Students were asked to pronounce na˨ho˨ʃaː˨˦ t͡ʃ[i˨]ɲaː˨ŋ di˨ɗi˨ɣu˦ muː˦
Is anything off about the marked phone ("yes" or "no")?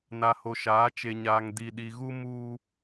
yes